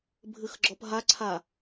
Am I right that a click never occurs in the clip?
no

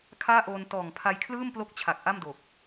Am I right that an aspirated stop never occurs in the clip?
no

